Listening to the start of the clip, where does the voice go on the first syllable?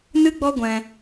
high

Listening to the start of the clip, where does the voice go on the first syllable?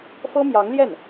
high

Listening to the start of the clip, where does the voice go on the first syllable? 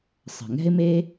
low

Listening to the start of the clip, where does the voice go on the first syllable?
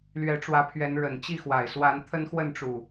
rising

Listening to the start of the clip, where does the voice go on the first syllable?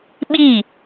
falling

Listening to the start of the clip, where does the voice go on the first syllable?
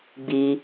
low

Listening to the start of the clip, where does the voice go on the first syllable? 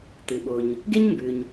low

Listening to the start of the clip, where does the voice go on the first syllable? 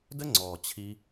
high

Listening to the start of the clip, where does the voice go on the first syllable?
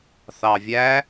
low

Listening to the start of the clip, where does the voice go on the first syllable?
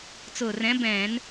low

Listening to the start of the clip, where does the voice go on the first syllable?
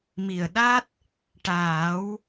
low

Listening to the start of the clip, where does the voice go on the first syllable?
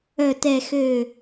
low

